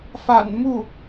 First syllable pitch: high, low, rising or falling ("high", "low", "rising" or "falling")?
low